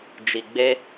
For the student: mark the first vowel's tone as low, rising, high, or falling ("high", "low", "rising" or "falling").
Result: low